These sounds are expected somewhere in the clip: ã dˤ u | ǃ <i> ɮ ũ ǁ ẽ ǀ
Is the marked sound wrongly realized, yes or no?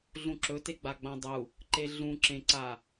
yes